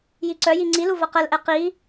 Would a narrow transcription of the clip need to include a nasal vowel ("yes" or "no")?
no